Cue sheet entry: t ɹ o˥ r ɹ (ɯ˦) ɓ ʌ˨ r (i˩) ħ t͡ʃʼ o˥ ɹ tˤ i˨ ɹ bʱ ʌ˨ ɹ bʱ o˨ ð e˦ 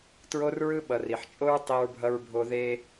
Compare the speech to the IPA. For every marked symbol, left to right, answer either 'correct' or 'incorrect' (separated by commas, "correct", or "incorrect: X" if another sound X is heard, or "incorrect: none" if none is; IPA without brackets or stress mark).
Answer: incorrect: ɯ˥, correct